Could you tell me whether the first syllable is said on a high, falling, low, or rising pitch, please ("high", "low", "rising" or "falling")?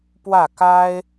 falling